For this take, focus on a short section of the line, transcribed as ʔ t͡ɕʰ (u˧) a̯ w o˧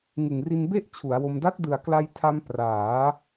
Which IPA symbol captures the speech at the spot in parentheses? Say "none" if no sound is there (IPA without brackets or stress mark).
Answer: u˩˦